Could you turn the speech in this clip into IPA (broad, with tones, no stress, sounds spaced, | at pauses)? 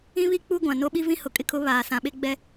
ĩ˦ β i˦ k͡p u˦ ɡʷ ã˨ n o˦ ɓ i˦ v ĩ˦ h ʊ˨ kʼ ɪ˦ kʰ ʊ˨˦ β aː˨ s ã˨ ɓ e˦ ɡ͡b ɛ˦